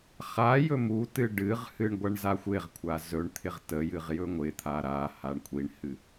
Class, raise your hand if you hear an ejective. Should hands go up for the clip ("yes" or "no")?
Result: no